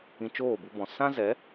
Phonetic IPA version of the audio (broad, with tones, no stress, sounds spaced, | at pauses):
ĩ˧ t͡ʃ oː˦˨ b u˧ b ɔ̃˨ s ã˦ z ɛ˨˦